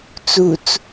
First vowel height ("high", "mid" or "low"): high